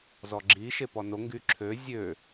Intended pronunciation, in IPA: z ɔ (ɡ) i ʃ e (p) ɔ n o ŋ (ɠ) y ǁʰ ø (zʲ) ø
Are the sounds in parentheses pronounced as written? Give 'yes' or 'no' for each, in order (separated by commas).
no, yes, no, yes